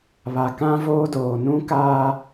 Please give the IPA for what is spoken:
βa˨kã˦voː˦ doː˨nũ˦kaː˦

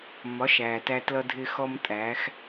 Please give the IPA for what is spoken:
mɒ˨˦ʃæː˨tæ˧ tlʌ˦dʱɪ˦xɔ˦m tʼæː˨˦x

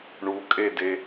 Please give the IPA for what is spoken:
ɳukʼede

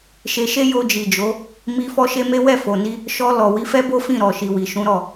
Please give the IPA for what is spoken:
ʃe˧ʃe˦ jo˧d͡ʒi˨d͡ʒo˨˦ | mi˧ fɔ˦ʃe˦me˦ wɛ˦˨fo˨ni˧ | ʃɔ˧lɔ˨ wi˨˦fɛ˦bo˦ fĩ˦˨ɾɔ˨ʃi˨ wi˨ʃũ˨˦ɾɔ˦˨

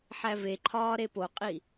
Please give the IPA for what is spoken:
ħæveǃʰɒː ɾepoqʼi

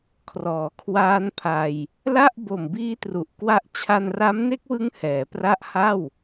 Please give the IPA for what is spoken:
kʰrɔː˩˦kʰwaː˦˥npʰa˧j | la˥˩ʔbo˨˩mbiː˦˥ tru˨˩ʔkwa˦˥ʔ t͡ɕʰa˧nra˦˥mne˦˥k̚wɯ˦˥ŋ hɛː˩˦pra˦˥ʔha˥˩w

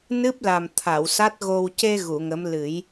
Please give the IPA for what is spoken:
nɨ˦˥p̚la˨˩m t̪ʰa˨˩˨wsa˦˥t̚ɣo˧w ce˧ ɣu˨˩˨ŋə˧˥m lɨ˨˩˦j

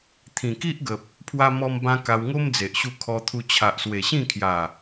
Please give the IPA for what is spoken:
t̪ʰĩ˨˩ki˦ʔɡə˨p̚ | pʰwa˧mɔ˧mbã˧ ka˧wŋo˦md͡ze˨ʔɕu˧ kʰɔ˧t̪ʰu˧ t͡ɕʰa˨ʔswe˨˩ɕĩ˥˧kʰja˨˩

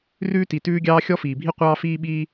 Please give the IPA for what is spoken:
rʉː˥ti˩ tʉː˥ɡʲɑː˥ xʲɔ˥fiː˩bʱi˥ qʷɑː˥fiː˥ ɓiː˥

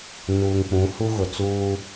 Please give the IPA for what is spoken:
nuː˨ŋk͡pũ˨˦hu˦ ɣʊ˨t͡suː˦

